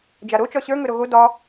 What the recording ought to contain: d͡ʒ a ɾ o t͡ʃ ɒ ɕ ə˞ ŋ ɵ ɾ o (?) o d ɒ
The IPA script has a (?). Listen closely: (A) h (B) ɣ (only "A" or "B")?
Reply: B